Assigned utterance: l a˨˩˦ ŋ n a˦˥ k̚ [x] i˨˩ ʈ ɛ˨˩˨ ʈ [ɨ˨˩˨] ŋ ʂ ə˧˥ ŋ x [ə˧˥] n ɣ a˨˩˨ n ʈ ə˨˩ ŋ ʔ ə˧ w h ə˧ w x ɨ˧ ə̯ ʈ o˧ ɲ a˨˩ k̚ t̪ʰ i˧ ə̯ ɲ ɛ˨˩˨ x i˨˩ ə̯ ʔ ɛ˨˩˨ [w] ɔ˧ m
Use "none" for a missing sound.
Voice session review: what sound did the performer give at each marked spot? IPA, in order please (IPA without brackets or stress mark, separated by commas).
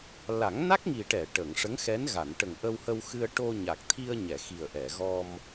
ŋ, ə˨˩˨, ɛ˧˥, ɣ